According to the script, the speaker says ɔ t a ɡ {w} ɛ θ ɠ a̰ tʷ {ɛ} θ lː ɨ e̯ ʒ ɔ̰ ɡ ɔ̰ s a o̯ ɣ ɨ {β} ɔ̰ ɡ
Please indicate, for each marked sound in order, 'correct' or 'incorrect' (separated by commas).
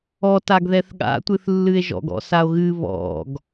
incorrect, incorrect, correct